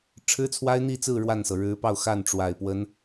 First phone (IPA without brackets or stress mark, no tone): ʈ͡ʂʰ